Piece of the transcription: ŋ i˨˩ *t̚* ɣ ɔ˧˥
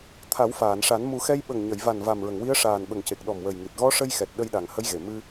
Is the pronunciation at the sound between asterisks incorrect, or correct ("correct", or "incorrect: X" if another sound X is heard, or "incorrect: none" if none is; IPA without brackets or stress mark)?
correct